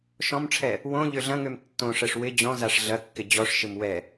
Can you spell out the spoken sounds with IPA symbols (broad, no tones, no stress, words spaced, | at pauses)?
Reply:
ʃɔ̃mʈ͡ʂʰɛ | wõ ʎøɮɐ̃ŋøm tːõʂɛʂ wɪ d͡ʑɔ̃ zaʂɮɐkːɪ d͡ʑɔʂʃɪm wɛ